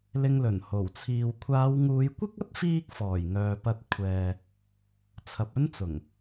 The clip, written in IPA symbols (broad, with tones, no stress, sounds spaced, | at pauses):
l ɪ˧ ŋ l ɵ˨˩ n h o˨˩ w t͡sʰ iː˨ w kʷʰ aː˨˧ w ŋ uː˨˧ j kʷ ɪ˥ k̚ ɐ˥ t̚ f iː˥ k̚ f ɔː˨˩ j ŋ œː˨ p ɐ˧ t̚ kʷʰ ɛː˨ | t͡sʰ ɐ˨ p̚ ɵ˥ n t͡s ʊ˨˩ ŋ